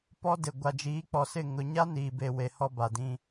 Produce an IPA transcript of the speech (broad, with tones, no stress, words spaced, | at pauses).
pɔ˦dɪ˨ ɡʷa˨d͡ʒiː˨˦k͡pɔ˨sɪ˦˨ ŋʊ˨ɲa˦ niː˨be˨we˨ hɔ˦ba˨dĩ˦